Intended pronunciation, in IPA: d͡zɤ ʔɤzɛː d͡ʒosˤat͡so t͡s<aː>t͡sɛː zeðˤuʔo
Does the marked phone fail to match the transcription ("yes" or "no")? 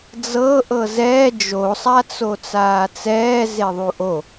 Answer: no